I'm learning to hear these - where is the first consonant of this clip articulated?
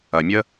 lips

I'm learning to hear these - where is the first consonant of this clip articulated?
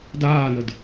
tongue tip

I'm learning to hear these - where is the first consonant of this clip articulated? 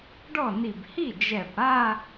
retroflex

